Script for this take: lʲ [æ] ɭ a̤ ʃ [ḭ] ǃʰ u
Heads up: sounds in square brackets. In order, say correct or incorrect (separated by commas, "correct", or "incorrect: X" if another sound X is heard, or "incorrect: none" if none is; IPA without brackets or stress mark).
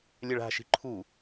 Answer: incorrect: ɛ, incorrect: i̤